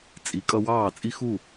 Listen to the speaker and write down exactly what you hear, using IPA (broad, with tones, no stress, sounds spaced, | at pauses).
t͡sʼ i˩˥ kʼ ʌ˧ w ɑː˥˩ t͡sʼ i˥ x u˥˩